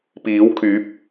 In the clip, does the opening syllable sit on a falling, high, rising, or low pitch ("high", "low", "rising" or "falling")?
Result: rising